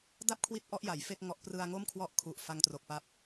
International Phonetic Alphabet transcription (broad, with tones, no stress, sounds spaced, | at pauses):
d a˥˩ p̚ kʰ w i˦˥ t̚ ʔ ɔ˦˥ ʔ j a˩˦ j f e˥˩ k̚ ŋ ɔ˦˥ ʔ p r ɯ˧ a̯ ŋ o˥˩ m kʰ w ɔ˥˩ ʔ kʰ u˨˩ ʔ f a˧ ŋ t r o˨˩ k̚ p a˦˥ p̚